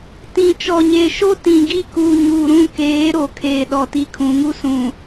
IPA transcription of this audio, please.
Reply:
t ĩ˨ t͡ʃ ɔ˨ ɲ eː˨ ʃ o˦ t ĩ˨ ɡ i˦˨ k uː˨ ɲ uː˨ ɾ ũ˦˨ k eː˨˦ ɾ o˨ kʰ eː˨ ɗ ɔ˨ t i˦ kʰ ũ˨˦ ŋ u˦ s ũ˨

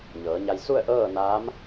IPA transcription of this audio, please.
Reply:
ɲ ɤː˩˧ ɲ a˧ j s u˥˨ ə̯ ʔ ɤː˥˨ n aː˧˥ m

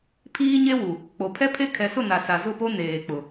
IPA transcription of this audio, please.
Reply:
pʰ iː˦ ɲ e˦ w u˨ | k͡p o˨ pʰ ɛ˦ pʰ e˦ kʰ ɛ˨ s ʊ˦˨ n a˨ s a˨ z ʊ˦˨ p o˦ n eː˨ k͡p ʊ˨

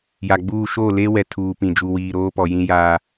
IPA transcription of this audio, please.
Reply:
j a˨ ɡ͡b uː˦˨ ʃ o˦˨ l e˦ w ɛ˨ tʰ uː˨ p ĩ˨ d͡ʒ u˨ w iː˨ ɾ oː˦ p ɔ˨ j ĩ˦ j aː˦

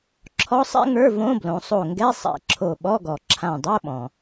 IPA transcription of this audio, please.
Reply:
ǁʰ ɔ˦˥ sˤ ɛ̰˦˥ ŋ ə˞˧˥˧ v õ˧˥˧ b l õ˩˧ sˤ o˧˩ ŋ ɡ ɛ˧˥˧ sˤ ɛ̰˧˩ ǁʰ o˧˩ ɓ ɔ˧˥˧ ɡ ɔ˩ ǁʰ ã˧˩ dˤ o˧˥˧ ɓ ɔ̃˩

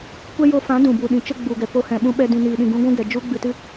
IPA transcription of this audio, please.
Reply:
kʷ ɛ˦ j o˧ f ã˨˦ d ũ˨ b u˨ ɗ ĩ˨ t͡ʃ ə˦ ɡ͡b u˨ ɡ ɛ˨ p o˧ h ɛ̃˨ ɓ ũ˧ ɓ ɛ˧ d ĩ˨ n iː˨ ɗ ĩ˨ ɡ ũ˧ ɡʷ ũ˦ ɡ ɛ˨ d͡ʒ u˦ ɡ͡b ɨ˨ t ɨ˧

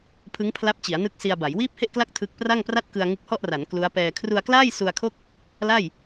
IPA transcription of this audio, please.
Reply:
pʰ ɯ˦˥ ŋ pʰ l a˦˥ p̚ t͡ɕ i˩˦ a̯ n ɯ˦˥ k̚ s i˧ a̯ b a˩˦ j w iː˥˩ p̚ h e˥˩ ʔ k l a˥˩ k̚ tʰ ɯ˦˥ k̚ p r a˥˩ ŋ p r a˥˩ t̚ k ɯ˧ a̯ ŋ ɯ˦˥ k̚ h ɔ˥˩ ʔ r a˩˦ n k l u˦˥ a̯ p ɛː˧ kʰ r u˧ a̯ k l aː˥˩ j s u˧ a̯ kʰ o˥˩ k̚ | l a˥˩ j

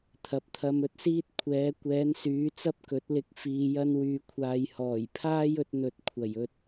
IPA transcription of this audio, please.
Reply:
t̪ʰ ɐ˨˥ p̚ t̪ʰ ɐ˧ m ɵ˧ t̚ s iː˥ t̚ kʷʰ ɛː˨˧ kʷ ɛː˨˧ n s yː˨˧ t͡s ɐ˥ p̚ k ɵ˨˥ t̚ l ɪ˧ k̚ f iː˧ j ɐ˥ n w yː˨ kʷʰ aː˨ j h ɔː˨˩ j pʰ aː˥ j ɵ˧ t̚ n̪ ɵ˨ t̚ kʷʰ ɐ˨˩ j ɵ˧ t̚

